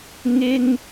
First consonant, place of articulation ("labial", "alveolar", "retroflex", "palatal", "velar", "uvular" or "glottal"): velar